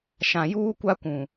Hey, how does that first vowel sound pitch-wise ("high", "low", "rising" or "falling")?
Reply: low